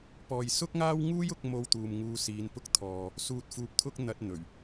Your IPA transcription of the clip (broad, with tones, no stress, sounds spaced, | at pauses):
p ɔː˨ j s ʊ˥ k̚ ŋ aː˥ w ŋ uː˥ j ʊ˨˥ k̚ m o˧ w t̪ uː˨ m ŋ uː˨˧ s iː˨˧ n p ʊ˥ k̚ t̪ʰ ɔː˧ | s uː˨ t̚ f uː˨ p̚ t̪ʰ ʊ˧ k̚ n̪ ɐ˧ t̚ n̪ ɵ˨˩ ɥ